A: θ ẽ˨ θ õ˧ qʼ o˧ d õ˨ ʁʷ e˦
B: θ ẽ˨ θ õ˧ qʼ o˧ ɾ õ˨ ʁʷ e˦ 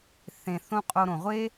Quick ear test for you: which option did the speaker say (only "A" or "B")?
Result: B